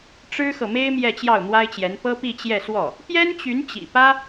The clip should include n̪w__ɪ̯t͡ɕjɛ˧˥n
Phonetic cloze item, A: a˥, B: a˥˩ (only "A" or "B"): A